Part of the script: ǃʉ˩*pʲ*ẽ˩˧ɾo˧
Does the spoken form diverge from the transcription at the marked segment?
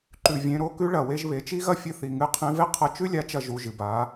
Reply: yes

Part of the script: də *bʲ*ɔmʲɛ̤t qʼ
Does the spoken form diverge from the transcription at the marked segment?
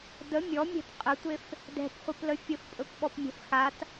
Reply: yes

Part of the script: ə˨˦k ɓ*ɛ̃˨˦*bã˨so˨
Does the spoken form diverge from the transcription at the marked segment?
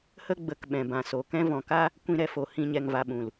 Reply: yes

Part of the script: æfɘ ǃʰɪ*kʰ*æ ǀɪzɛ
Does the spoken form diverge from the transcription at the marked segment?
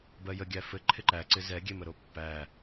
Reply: yes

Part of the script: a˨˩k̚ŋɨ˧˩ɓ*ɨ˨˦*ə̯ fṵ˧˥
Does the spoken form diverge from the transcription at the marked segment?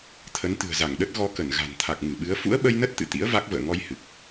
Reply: no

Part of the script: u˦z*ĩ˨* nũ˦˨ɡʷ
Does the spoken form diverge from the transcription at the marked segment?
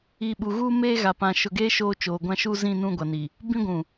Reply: yes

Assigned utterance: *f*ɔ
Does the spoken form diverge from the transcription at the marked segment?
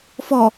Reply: no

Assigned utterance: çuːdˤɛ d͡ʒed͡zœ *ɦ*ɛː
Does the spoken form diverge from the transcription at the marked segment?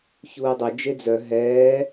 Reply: no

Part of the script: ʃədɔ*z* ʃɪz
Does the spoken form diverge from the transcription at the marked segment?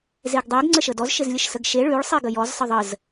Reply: no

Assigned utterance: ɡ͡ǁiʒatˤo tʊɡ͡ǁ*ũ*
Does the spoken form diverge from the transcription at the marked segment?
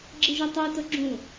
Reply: no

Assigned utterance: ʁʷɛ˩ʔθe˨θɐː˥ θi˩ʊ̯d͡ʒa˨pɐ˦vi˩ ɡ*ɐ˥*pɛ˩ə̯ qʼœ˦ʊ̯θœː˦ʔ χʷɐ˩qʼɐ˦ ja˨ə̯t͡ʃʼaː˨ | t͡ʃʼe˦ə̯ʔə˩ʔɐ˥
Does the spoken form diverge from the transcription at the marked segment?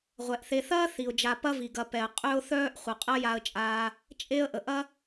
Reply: yes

